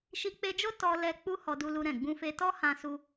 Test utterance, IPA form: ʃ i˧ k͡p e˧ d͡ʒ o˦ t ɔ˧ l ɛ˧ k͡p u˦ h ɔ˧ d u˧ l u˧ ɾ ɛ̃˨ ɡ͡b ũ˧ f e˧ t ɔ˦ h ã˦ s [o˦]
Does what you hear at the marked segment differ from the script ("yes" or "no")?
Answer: yes